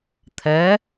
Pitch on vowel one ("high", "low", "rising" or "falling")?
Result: rising